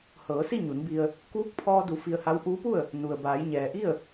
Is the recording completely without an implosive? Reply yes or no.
yes